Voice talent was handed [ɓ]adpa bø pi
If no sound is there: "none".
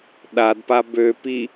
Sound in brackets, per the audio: ɗ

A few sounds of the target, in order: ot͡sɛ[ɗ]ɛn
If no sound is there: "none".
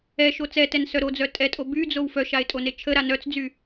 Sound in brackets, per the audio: t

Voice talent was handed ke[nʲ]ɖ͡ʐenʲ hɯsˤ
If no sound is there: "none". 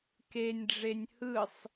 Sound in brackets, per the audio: nʲ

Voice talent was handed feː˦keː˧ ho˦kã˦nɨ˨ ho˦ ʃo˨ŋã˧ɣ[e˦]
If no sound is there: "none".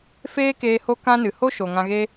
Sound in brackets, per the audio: e˦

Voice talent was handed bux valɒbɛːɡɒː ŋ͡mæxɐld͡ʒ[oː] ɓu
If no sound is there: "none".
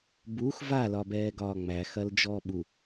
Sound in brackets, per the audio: ɔː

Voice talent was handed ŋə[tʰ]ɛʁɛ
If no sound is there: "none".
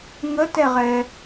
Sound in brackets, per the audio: t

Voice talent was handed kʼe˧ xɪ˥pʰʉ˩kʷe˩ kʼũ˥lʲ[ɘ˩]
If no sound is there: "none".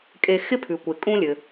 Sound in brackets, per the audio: ɘ˩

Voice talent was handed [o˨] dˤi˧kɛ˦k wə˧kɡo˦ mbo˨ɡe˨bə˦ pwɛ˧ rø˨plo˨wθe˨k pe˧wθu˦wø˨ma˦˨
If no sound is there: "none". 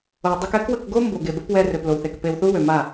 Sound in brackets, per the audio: o˨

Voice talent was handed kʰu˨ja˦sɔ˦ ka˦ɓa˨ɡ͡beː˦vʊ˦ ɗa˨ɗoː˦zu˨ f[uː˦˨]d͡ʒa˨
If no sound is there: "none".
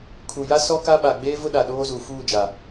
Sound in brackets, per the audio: uː˦˨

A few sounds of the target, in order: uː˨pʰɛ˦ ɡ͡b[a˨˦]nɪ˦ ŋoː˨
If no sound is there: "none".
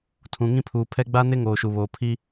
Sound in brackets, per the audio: a˦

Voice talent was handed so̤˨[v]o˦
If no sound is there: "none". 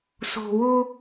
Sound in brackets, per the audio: w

